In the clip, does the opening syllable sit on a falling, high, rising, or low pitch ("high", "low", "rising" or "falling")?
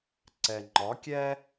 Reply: low